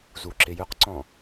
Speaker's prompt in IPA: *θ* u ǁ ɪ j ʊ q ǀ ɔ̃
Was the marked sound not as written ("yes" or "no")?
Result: yes